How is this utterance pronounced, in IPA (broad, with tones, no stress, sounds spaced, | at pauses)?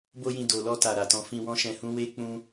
b o˦ j ĩ˧ d o˨ l ɔ˧ t a˨ ɾ a˨ t ɔ̃˧ f ĩ˧ w ɔ̃˦ ʃ ɛ̃˧ h ũ˦ w e˦ k͡p ũ˦